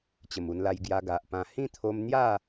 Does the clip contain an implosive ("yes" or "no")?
no